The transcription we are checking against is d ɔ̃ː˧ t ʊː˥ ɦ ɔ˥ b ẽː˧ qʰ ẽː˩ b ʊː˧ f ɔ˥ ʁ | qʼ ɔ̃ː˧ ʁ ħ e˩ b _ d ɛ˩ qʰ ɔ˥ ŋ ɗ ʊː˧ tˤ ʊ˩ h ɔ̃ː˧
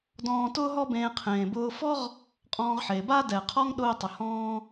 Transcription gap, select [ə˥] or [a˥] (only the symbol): a˥